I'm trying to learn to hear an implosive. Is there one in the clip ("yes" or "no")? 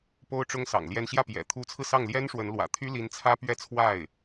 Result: no